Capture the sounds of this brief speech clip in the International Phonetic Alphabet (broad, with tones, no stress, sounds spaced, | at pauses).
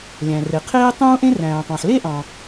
lʲ æ̃˩ r e˩ qʰ eː˥ tˤ ũː˥ ʔ ẽ˥ r æ̃ː˩ tˤ ɑ̃˩ ħ l e˥ ʔ ɑ̃˩